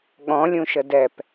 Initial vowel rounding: rounded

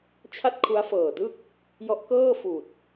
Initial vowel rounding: unrounded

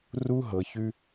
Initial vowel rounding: rounded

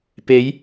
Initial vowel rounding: unrounded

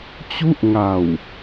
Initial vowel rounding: rounded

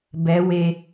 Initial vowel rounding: unrounded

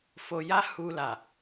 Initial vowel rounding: rounded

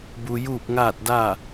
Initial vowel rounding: rounded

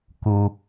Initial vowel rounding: rounded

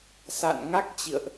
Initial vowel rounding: unrounded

